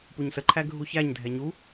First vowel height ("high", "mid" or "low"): high